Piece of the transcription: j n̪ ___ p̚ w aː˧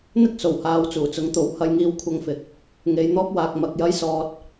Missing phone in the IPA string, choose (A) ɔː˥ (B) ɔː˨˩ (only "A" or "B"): A